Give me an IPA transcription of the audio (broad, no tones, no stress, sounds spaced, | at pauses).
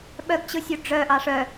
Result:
ɓ œ ɡ t͡ɕ ɯ sʲ u ɖ͡ʐ œ ʔ ɑ ʂ œ